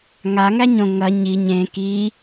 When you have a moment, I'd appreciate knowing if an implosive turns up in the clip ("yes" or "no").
no